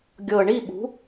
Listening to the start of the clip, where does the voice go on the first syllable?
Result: low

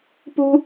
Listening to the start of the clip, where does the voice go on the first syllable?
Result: high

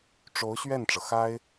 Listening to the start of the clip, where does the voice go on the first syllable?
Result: rising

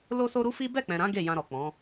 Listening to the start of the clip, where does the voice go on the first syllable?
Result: high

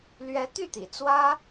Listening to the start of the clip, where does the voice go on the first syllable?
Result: rising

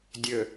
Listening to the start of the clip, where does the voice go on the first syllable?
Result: low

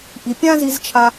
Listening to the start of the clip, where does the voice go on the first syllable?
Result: low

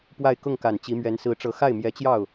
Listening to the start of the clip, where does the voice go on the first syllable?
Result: falling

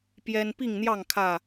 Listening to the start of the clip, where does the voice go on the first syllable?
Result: high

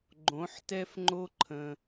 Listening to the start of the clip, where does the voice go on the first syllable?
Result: rising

